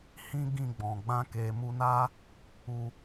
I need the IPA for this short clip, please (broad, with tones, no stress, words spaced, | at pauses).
hĩ˦ ɡĩ˦˨ɡ͡bɔ̃˨ ɡ͡bã˧ke˨mu˧na˦ | u˧